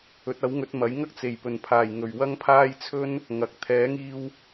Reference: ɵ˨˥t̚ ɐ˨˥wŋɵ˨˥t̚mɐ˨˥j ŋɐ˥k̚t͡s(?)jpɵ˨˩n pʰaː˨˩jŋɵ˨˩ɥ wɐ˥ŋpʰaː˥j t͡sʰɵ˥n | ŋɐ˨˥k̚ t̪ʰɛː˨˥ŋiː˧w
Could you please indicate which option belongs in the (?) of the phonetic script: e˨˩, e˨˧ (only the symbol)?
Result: e˨˩